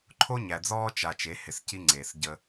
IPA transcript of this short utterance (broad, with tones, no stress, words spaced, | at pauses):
ǃʰo˦ɲæ˨d͡zɔː˦ t͡ʃa˨ t͡ʃe˨˦hɪ˨s ci˦ŋ͡ǀeː˨s ɟə˦